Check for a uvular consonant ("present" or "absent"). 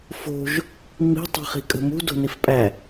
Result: present